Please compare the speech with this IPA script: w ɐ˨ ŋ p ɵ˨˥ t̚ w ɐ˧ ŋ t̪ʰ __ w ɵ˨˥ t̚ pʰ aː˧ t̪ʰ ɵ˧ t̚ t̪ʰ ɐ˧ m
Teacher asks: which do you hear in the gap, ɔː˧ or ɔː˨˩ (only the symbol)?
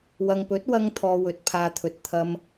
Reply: ɔː˧